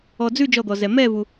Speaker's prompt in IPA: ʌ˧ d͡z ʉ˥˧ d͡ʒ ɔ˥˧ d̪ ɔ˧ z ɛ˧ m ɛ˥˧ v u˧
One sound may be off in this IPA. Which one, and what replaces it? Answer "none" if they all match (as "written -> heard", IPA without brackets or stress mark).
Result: ʌ˧ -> ɔ˧